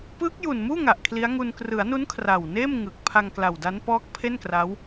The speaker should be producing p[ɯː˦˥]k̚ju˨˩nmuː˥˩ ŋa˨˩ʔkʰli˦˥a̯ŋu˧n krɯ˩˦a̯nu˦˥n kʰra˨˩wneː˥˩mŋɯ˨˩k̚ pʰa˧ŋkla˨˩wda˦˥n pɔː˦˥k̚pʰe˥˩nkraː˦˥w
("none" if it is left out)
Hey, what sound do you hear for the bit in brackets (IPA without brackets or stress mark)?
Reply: ɯː˦˥